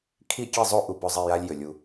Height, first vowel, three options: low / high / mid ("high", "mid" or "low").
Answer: high